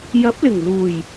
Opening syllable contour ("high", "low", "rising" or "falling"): rising